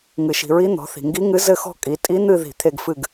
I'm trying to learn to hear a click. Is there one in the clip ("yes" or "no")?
no